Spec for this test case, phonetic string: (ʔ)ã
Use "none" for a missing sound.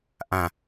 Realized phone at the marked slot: ʔ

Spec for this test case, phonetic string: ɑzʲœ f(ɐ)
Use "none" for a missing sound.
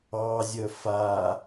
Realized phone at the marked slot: a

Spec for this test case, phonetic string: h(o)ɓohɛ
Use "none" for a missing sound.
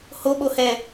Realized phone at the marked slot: o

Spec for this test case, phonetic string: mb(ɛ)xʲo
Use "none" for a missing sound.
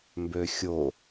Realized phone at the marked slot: ø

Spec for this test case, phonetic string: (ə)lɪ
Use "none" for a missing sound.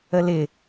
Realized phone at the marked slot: ə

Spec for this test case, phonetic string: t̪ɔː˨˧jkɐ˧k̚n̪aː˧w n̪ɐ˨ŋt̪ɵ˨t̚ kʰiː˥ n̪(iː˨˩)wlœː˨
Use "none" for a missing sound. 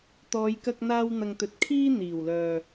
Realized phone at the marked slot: iː˨˩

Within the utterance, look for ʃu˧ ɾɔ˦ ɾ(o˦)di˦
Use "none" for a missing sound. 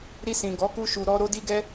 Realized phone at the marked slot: o˦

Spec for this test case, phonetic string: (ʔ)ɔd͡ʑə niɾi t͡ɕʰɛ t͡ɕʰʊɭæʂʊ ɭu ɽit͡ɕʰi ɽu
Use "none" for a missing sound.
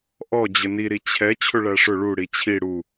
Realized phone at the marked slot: ʔ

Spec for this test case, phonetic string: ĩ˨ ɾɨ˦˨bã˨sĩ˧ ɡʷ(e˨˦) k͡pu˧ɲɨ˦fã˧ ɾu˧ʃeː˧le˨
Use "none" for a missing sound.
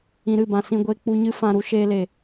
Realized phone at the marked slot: e˧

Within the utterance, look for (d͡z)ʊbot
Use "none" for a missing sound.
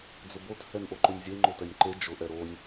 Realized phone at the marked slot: d͡z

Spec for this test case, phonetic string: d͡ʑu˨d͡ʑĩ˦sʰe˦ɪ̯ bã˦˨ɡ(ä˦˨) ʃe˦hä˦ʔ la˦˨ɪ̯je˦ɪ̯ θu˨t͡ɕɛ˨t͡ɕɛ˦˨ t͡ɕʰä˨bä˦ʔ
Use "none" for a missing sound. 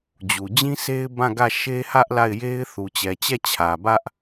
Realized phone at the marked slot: ä˦˨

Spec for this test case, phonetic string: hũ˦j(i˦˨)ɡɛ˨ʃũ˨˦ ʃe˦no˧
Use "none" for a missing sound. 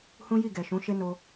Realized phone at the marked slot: i˦˨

